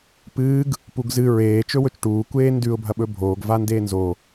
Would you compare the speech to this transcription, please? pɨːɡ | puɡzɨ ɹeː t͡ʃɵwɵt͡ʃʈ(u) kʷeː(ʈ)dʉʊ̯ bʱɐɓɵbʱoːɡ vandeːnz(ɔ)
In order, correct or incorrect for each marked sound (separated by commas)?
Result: incorrect, incorrect, incorrect